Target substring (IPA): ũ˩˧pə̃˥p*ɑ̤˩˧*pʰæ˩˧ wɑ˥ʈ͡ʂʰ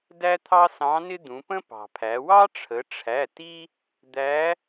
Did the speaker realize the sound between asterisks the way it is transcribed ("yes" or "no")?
no